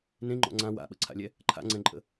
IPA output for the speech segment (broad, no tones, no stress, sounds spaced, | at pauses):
n ẽ ŋ͡ǃ ɔ̰ ŋ͡ǀ ã w a̰ ɓ ə̰ ǀʰ a̰ lʲ ɛ | ǃʰ a̰ ŋ͡ǀ ɛ̃ ǃʼ ə̰